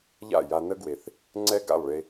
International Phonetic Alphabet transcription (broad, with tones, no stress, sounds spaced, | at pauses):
ʎ a̰˥˩ j a˧ n ə˥ ɡ w e˩ θ | ŋ͡ǀ ɛ˥ ɡ a̰˥˩ lˠ ɭ e˧